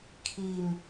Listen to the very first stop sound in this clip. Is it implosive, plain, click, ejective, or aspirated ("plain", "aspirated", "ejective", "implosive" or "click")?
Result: aspirated